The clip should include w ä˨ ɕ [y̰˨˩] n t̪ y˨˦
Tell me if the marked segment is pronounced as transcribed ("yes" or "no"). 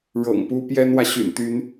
yes